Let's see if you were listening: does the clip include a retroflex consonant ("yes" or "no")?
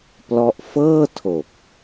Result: no